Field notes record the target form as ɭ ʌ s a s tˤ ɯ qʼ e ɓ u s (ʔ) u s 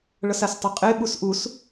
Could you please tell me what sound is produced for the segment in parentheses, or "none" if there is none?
ʔ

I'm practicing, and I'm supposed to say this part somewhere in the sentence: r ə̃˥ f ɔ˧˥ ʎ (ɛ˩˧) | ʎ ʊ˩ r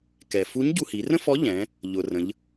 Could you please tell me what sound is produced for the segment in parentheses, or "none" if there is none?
ɛ̃˩˧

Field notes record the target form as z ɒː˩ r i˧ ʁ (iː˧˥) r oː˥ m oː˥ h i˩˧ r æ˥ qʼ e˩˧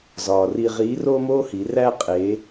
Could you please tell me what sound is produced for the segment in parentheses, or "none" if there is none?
iː˧˥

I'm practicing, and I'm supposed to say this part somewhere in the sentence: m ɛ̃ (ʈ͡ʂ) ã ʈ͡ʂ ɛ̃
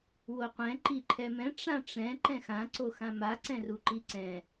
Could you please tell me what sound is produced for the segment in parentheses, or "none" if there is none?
ʈ͡ʂ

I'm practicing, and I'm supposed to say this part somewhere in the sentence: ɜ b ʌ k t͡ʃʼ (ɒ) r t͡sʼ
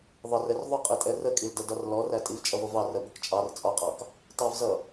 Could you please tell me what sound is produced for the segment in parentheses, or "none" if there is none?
ɑ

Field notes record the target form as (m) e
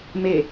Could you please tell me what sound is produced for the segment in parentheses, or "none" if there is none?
m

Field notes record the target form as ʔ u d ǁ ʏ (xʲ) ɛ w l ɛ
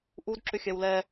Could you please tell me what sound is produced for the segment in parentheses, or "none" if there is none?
xʲ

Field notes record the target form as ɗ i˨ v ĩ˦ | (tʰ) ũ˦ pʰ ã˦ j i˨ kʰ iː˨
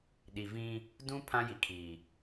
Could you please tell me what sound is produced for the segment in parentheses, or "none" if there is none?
d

